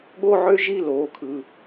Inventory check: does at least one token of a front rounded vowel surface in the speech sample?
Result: yes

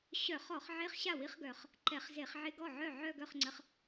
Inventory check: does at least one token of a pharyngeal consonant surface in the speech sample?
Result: yes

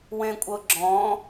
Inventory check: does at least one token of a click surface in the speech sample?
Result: yes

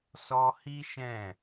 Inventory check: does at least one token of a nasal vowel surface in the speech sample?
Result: yes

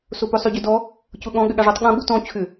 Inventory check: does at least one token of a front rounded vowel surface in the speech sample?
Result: yes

